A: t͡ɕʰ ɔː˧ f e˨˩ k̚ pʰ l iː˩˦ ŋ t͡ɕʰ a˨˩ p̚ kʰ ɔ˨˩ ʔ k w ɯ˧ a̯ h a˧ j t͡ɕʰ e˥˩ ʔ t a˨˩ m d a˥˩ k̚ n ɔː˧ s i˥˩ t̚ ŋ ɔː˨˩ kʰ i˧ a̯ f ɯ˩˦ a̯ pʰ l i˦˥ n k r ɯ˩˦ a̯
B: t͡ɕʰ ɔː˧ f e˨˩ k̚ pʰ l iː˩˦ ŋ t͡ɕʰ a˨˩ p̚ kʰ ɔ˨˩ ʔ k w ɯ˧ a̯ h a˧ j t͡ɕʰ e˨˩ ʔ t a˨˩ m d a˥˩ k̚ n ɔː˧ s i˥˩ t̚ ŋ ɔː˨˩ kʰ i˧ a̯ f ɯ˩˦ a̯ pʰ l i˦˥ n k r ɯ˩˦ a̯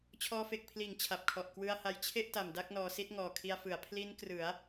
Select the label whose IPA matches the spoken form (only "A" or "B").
A